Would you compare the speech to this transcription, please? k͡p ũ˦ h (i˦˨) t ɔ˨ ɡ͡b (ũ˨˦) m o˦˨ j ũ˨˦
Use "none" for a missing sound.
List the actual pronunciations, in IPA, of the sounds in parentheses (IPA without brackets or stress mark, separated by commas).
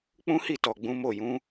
i˦˨, ũ˨˦